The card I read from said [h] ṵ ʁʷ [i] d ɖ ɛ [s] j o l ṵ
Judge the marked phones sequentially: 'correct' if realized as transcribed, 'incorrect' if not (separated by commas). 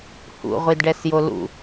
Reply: correct, correct, correct